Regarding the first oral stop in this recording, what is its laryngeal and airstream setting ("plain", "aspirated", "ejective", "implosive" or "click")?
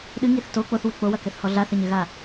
implosive